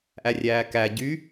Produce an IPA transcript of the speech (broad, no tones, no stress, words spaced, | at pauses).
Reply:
ʔærʲæːkæ ɟy